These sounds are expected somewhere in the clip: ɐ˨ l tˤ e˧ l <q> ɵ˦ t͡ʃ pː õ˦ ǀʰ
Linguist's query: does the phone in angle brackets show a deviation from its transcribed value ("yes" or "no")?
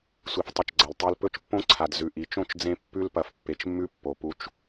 yes